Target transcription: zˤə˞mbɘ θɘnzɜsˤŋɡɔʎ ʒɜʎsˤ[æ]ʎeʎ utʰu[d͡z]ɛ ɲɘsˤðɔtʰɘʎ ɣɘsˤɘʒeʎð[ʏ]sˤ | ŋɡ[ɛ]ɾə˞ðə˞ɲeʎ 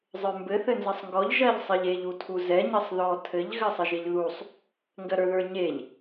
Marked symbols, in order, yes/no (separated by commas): no, no, no, no